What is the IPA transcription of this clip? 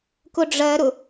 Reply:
k ʊ ɖ͡ʐ ɜ ɾ ʊ

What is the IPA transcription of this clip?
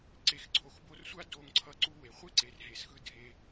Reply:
ǀ e˨ x ǀʰ o˨ x b o˧ r sʷ a˦ d o˧ ŋ ǀʰ ʌ˧ ǀ u˦ w e˧ χʷ e˦ ǀ e˨ r ɦ e˨ s x ɯ˧ dʱ e˧

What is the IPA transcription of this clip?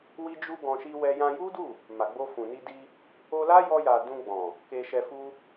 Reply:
w i˦ d͡ʒ u˦ ɡ ɔ̃˧ ʃ i˦ w ɛ˦ j ã˧ j u˦ d u˦˨ | m a˨ ɡ͡b o˧ f ũ˨ n i˧ d i˧ | o˧ l a˦ j ɔ˧ j a˨ d ũ˧ ɡ͡b ɔ̃˨ | k e˧ ʃ ɛ˧ f u˦

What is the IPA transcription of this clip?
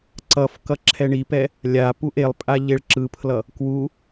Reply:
ǀ ʌ f k ʌ ǁʰ ɛ ɳ i p ɛ | lʲ a p u ʔ e lˠ pʼ a ʎ e ɭ ǁ ɯ pʰ l ʌ | k w u

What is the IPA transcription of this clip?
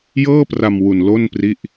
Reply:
j ɤː˥˩ p r a˧ m w u˧ n l o˥˩ n p r i˥˩ ʔ

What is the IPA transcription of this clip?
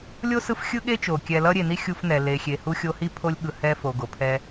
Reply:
lʲ o˥ s ɯ˦ f xʲ ɯ˦ ɠ e˦ t͡ʃ o˩ kʲ ɛ˨ l ʌ˥ ɾʲ e˨ n i˥ xʲ u˥ f n ɛ˨ l e˨ xʲ e˨ h u˦ xʲ o˦ h i˥ pʰ o˦ lʲ ɠ ɯ˨ h ɛ˦ f o˨ ɡ o˩ pʰ ɛ˦

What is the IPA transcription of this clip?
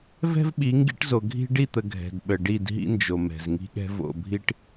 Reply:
v ɛ̤˦ v ɓ i˨˦ ŋ ɡ ḭ˦ ʈ z o˨ ɡʱ i̤˦ ɖ i˦˨ t̪ ə˨ ɡʱ ɛ̤˨ d ɓ ə˨ ɖ i˦˨ d ɦ ḭ˦ n d͡ʒ o˨ m ɛ̤˨ z ŋ i̤˦ ɠ ɛ̤˦ v o̰˨ bʱ i˦ ʈ

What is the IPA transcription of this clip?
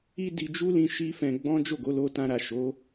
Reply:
i˦ d i˧ d͡ʒ u˦ l ĩ˧ ʃ i˦ f ɛ̃˧ ɡ͡b ɔ̃˦ d͡ʒ o˦˨ ɡ o˨˦ l o˧ t ã˧ ɾ a˨ ʃ o˨˦

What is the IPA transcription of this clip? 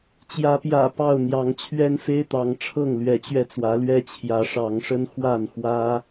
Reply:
t͡ɕ j ä˨˦ p j ä̰˨˩ p ɑ˥˨ ʊ̯ n̪ j ɑ˨˦ ŋ t͡ɕʰ ɥ ɛ˦ n f e˦ ɪ̯ t̪ ɑ˨˦ ŋ ʈ͡ʂʰ ɤ˥˨ ŋ l ɥ ɛ˨˦ t͡ɕ ɥ ɛ˧ t͡s w ä˨˦ l ɥ ɛ˦ t͡ɕʰ j ä˨˦ ʂ ɑ˨˦ ŋ ʂ ə˦ n x w a˥˨ n x w ä˦

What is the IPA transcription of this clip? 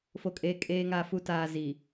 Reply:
f o˨ kʼ eː˨ kʼ eː˨ ŋ a˨ f u˨ t aː˨ z iː˨

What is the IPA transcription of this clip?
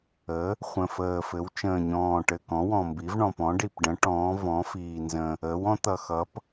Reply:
ə˩˥ | χʷ ə̃˨˩ f əː˨˩ f ɘ˩˥ w t͡ʃ ə̃ː˨˩ ɲ ɔ̃ː˨˩ ʈ ɘ˨˩ k ɔ̃˩˥ w ɔ̃˨˩ m b i˩˥ v ɳ ɔ̃˨˩ p ɔ̃˩˥ ɖ i˨˩ p ɖ ə̃˩˥ ʈ ɔ̃ː˩˥ v ɔ̃˩˥ f iː˨˩ n z ə̃˨˩ | əː˩˥ w ɔ̃˩˥ t̪ ʌ˨˩ x ʌ˩˥ p

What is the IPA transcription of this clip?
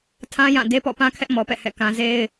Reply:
tʰ ã˦ j ã˦˨ d e˦ p ɔ̰˦˨ p ã˦ kʰ ɛ˦ ʔ m ɔ˨ p ɛ̰˦˨ h ɛ̰˦˨ k ã˦ z e˦ ɪ̯

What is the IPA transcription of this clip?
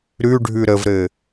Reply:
ɾ ʉ ɖʱ ʉ ɾ ə v ɾ ɘ

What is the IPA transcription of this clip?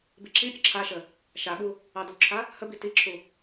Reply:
b i ǁ i pʲ ə ǁʰ a ʃ ə | ʃ a ɠ u | ɑ d u ǁʰ a | h ə b i t i ǁʰ u

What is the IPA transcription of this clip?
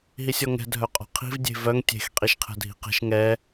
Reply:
ɦ i sʲ ɔ ŋ ɛ̤ dʱ œ qʼ ɔ̤ qʰ i̤ v dʲ e̤ v œ ŋ tʲ e̤ x qʼ i ʃ qʰ ɛ̤ dʱ i̤ q e̤ ʃ ŋ ɛ

